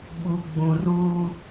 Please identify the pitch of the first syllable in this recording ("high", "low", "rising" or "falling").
low